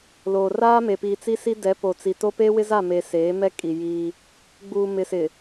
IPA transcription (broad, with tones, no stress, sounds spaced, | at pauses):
l oː˨ r aː˦ m e˨ p iː˨ t͡s i˦ s i˦ d ɛ˨˦ p o˨ t͡s i˨ t o˦ p eː˦ w ɪ˦ z a˦˨ m e˨ s eː˨˦ m ɛ˦ kʼ i˨ j iː˦ | ɡ͡b uː˨ m ɪ˨ s ɪ˨